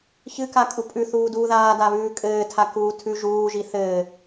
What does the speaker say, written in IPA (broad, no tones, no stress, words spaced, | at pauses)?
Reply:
çɨka kʼupʼʉ θuːduːðaːda βʉːkʼɘː tʰakuːtʰʉ ʒuːʒi θɘː